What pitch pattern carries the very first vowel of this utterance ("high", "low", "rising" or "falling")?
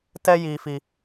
high